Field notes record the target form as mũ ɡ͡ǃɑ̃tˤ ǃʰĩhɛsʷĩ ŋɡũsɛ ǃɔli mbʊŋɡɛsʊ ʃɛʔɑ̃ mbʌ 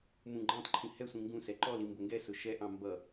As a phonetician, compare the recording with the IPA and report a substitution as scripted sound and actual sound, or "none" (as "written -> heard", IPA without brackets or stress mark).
none